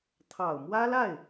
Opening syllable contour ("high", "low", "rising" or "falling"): low